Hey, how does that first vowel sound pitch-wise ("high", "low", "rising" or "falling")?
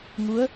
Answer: rising